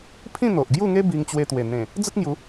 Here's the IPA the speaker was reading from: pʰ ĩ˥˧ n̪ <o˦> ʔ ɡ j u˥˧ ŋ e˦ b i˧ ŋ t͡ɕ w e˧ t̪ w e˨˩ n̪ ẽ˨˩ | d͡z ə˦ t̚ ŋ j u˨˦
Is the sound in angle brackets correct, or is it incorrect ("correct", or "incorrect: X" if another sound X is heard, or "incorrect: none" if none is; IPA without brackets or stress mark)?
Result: incorrect: o˨